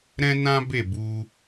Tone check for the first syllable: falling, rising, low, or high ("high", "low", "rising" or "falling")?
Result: high